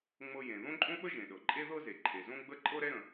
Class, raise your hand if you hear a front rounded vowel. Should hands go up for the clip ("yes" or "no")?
no